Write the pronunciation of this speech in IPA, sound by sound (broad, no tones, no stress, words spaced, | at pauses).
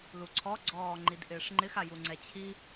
luǀʰɔ ɡ͡ǀɔːŋ͡ǃidʔɪːʂŋ͡ǃɪx ajuŋ͡ǀɛt͡ɕʰi